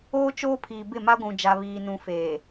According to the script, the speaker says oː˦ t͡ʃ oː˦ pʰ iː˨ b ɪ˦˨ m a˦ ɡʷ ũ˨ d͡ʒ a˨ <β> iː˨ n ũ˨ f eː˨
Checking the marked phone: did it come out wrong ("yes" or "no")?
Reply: no